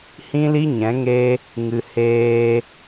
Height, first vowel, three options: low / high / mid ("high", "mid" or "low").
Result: high